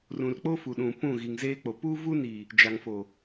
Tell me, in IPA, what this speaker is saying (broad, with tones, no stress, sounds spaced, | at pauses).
r ũ˨ r k͡p o˦ f u˨ ɗ ũ˨ p ũ˦˨ ɣ i˨ ŋ z eː˦ k͡p o˨ p uː˦ v u˦ n i˨ | d͡ʒ a˨ ŋ f o˨